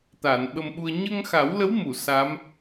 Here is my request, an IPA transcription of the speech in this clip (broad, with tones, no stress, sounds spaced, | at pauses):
t̪ aː˨˩˨ n ɓ ə˧ m ɓ u˧ ə̯ ɲ ə˧ ŋ x a˨˩˦ w l ə˧˥ w m u˨˩˨ s a˧˥ m